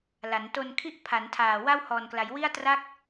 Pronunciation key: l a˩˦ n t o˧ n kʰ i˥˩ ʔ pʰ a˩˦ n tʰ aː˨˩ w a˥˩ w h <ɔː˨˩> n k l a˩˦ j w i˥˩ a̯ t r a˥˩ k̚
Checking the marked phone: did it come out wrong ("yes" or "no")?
no